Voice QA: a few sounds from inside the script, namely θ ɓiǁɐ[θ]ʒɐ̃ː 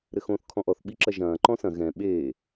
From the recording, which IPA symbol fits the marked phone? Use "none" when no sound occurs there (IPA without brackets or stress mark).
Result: none